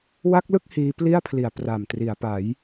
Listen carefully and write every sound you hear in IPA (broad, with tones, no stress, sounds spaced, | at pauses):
w a˦˥ k̚ l ɯ˥˩ k̚ h iː˦˥ p l i˥˩ a̯ pʰ l i˨˩ a̯ p r a˨˩ m t r i˩˦ a̯ p a˩˦ j